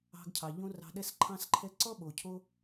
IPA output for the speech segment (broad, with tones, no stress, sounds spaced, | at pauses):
ɑ̤˧ ɡ cʰ ɑ˨ ʎ õ˦ r ɑ̤˧ ɗ ɛ˧ s ǃʰ ɑ̃˧ s ǃʰ ɛ˧ ǀ ɔ˦ ɓ o˨ cʰ o˦